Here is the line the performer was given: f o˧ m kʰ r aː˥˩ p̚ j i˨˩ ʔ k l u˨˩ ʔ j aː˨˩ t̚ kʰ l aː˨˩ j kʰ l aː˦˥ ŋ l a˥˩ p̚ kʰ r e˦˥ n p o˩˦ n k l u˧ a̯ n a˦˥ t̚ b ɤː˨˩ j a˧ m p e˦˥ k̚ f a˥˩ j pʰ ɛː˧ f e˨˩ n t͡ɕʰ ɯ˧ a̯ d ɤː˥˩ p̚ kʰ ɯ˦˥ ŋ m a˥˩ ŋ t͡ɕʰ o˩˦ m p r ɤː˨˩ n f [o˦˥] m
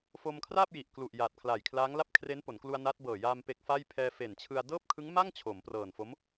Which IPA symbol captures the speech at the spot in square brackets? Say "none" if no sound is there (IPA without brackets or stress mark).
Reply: o˦˥